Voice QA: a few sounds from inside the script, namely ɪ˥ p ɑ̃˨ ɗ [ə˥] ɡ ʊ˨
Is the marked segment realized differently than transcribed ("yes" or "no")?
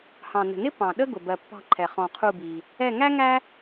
no